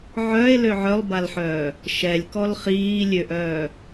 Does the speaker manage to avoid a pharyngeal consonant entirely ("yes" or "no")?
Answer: no